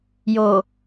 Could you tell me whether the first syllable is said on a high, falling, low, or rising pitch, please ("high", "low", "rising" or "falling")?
low